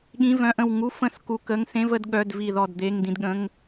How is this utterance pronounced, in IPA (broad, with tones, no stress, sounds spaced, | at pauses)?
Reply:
ɠ ĩ˧˥˧ v œ̃˧˥˧ ʔ ə̃˦˨ w ŋ u˧˥˧ f ə̃˦˨ s k u˧˥˧ k ə˧˥˧ ŋ s ẽ˧˥˧ v ə˦˨ d ɠ œ˧˥˧ d v i˦˨ ð ɔ˦˨ d d̪ e˧˥˧ ŋ d ĩ˦˨ d ɠ ə̃˧˥˧ ŋ